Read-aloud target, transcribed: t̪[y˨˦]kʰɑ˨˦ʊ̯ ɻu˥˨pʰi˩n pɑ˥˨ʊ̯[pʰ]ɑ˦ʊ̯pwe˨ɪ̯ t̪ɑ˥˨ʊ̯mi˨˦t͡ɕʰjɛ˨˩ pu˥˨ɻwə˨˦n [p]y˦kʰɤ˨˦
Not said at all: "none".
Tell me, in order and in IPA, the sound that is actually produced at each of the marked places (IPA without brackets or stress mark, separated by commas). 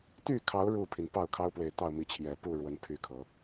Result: y˥˨, kʰ, pʰ